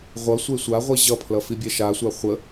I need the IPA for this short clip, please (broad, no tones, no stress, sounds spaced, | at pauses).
ʁʷ ʌ sʷ e sʷ a ʁʷ i ʑ ʌ pʰ l ʌ f i bʲ ɛ ʃ a sʷ a χʷ ə